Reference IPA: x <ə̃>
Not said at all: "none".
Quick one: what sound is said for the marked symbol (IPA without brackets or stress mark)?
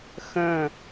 ə̃